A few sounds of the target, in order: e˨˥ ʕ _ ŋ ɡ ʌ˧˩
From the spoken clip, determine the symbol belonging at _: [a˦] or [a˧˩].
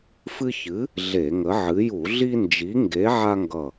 a˦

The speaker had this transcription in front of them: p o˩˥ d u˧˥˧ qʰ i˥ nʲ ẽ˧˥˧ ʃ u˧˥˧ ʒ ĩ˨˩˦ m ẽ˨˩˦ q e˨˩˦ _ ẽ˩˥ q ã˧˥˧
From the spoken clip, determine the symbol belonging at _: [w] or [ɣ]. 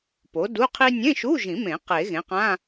ɣ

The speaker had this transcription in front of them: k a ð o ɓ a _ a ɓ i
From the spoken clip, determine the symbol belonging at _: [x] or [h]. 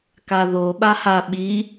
h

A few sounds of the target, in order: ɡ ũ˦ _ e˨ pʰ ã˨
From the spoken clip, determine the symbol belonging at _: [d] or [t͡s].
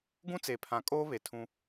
t͡s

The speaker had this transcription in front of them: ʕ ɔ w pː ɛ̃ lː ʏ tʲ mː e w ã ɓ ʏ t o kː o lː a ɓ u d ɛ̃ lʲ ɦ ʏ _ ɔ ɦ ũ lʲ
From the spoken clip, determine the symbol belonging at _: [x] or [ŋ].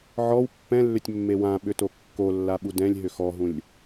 x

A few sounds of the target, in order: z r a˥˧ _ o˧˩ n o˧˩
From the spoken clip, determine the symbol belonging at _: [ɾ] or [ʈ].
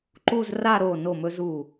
ɾ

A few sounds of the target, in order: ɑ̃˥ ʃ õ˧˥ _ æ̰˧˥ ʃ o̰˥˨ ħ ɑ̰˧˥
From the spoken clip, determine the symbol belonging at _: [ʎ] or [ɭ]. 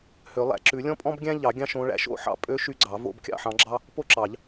ɭ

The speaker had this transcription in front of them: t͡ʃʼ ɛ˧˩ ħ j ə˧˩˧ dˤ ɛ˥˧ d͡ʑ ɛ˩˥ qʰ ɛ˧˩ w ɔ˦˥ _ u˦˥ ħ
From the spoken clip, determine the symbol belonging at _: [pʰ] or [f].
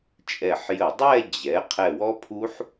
pʰ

